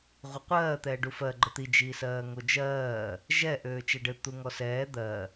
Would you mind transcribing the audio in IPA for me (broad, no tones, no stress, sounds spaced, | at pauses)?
ʁʷ ə qʷ ɜː t̪ ɛː ɖ u f ɜ ɡ͡ǃ ə t̪ i d͡ʒ iː s ɜː ŋ o d͡ʒ ɜː | ʒ ɛ ʔ øː t͡ʃ ɛ ɖ ɘ t̪ u ŋ ɔ s ɛː d̪ ɜ